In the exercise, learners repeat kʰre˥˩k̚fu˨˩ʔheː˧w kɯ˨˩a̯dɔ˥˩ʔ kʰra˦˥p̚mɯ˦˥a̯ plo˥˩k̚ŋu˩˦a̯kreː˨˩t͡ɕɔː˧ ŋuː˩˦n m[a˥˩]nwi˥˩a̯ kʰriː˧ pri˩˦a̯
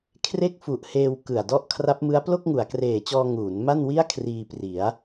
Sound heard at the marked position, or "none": a˥˩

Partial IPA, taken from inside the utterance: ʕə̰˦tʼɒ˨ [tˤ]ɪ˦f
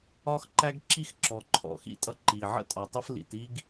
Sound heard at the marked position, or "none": tˤ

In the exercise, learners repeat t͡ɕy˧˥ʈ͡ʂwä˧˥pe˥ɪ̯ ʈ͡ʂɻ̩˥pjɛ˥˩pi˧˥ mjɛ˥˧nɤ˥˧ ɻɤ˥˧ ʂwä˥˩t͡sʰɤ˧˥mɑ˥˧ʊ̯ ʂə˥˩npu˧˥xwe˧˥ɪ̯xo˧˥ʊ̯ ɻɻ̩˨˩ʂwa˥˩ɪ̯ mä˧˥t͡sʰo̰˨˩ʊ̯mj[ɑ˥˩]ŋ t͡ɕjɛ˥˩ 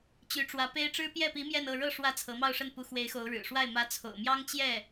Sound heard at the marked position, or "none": ɑ˥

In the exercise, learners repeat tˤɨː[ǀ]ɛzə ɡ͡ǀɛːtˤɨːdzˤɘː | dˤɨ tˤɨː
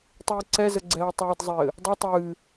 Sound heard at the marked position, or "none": ǀ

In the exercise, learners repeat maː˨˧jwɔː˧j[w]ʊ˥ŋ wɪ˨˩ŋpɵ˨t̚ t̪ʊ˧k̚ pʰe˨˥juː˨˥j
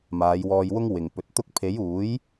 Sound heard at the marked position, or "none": w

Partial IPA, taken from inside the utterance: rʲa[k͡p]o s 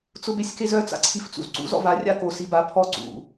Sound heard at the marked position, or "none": k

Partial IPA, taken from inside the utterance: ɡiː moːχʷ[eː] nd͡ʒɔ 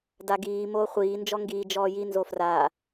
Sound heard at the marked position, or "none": iː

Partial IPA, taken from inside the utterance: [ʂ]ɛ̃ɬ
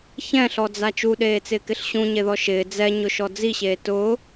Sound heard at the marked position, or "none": ç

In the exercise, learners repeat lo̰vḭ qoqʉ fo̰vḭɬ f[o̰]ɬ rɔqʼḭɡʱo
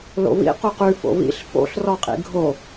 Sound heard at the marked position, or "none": o̰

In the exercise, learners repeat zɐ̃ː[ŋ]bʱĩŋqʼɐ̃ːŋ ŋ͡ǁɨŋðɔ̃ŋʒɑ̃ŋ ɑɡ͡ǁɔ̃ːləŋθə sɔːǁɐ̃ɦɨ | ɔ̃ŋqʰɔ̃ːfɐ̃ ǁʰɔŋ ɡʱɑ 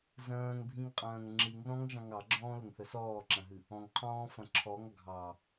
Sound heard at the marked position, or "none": ŋ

